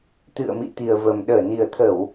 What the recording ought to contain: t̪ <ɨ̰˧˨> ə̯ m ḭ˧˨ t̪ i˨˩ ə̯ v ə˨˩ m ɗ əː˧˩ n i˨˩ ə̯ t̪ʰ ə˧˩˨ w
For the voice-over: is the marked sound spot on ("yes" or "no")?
yes